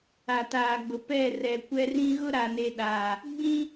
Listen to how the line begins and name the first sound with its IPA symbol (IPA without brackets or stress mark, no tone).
a